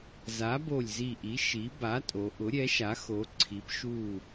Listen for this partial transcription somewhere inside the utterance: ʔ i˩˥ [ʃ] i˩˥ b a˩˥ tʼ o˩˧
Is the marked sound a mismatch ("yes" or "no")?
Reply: no